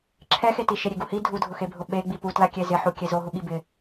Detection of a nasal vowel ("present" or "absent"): absent